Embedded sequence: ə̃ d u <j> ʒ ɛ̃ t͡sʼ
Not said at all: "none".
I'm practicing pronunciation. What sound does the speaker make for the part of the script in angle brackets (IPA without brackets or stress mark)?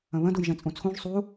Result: j